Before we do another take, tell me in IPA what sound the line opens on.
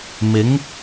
m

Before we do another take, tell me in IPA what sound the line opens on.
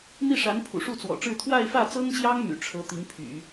n̪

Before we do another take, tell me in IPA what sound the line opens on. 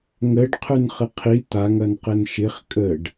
ŋ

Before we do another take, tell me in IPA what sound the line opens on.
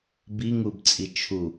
b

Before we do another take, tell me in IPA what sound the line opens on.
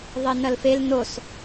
ðˤ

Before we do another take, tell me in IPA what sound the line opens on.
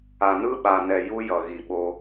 a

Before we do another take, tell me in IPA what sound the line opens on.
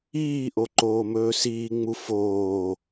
iː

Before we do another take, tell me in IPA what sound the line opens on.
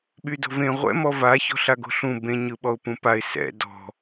ɓ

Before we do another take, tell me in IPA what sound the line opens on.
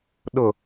ɗ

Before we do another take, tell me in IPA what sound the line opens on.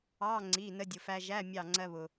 ɑ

